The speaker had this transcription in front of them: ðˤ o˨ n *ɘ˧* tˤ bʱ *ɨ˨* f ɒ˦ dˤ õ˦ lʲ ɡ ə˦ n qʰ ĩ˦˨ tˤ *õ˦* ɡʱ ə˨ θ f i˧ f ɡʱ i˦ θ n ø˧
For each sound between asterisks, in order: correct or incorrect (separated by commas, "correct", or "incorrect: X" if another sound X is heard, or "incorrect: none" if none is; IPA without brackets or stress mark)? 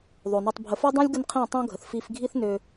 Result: incorrect: ø˧, incorrect: ə˨, correct